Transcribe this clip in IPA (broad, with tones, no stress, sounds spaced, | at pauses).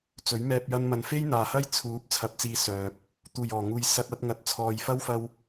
t͡s ɵ˨˥ ɥ m ɛː˧ p̚ j ɐ˧ n m ɐ˨˧ n f e˥ j n̪ aː˨ h ɐ˥ j t͡sʰ uː˨˥ p̚ t͡sʰ ɐ˨˥ p̚ t͡s iː˨ s œː˨ p̚ | t̪ uː˨˩ j ɔː˨˩ ŋ uː˨ j s ɐ˧ t̚ ɐ˨˥ t̚ ŋ ɐ˨˥ t̚ t͡sʰ ɔː˨ j f ɐ˥ w f ɐ˧ w